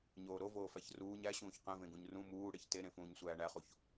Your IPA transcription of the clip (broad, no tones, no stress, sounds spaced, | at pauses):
ɲ oː ɾ o v oː f æ ç r uː ɲ æ ɕ ũː ç q ẽ v ẽ ɡ ũ ɲ r ũ m uː ɽ e ç t e ɾ ẽ f ũː ɲ sʷ æː ɳ æ χ u ç